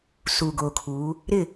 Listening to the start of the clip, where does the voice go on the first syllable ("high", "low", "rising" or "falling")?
low